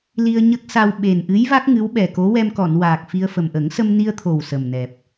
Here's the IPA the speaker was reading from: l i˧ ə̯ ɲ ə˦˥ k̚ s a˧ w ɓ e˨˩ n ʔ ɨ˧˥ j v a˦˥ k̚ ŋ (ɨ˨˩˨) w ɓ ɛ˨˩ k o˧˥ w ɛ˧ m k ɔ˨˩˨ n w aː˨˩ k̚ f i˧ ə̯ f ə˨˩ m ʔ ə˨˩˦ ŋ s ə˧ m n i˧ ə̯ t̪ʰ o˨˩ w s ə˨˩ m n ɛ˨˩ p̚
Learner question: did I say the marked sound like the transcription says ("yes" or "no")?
no